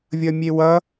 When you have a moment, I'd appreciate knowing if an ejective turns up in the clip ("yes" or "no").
no